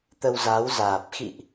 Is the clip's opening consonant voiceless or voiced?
voiceless